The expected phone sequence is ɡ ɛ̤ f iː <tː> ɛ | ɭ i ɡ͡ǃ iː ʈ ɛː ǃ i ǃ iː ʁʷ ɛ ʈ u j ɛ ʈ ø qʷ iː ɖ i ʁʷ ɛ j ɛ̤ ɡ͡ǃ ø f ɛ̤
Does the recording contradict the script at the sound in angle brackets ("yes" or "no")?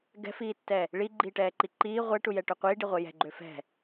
no